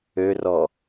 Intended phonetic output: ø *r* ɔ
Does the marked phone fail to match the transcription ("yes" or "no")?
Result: no